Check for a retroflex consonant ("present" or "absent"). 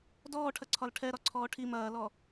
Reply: present